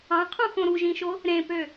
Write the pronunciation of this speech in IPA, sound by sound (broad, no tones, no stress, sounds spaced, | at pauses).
ɑ̃ qʰ ũ x õ ɾ u ʒ ĩ ʃ o | ɾ ẽ p ø